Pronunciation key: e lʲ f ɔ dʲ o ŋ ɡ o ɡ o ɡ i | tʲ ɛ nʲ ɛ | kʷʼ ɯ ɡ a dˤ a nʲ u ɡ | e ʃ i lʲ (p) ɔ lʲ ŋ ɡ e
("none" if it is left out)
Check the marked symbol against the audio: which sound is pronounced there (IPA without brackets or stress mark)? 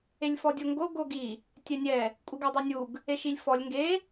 f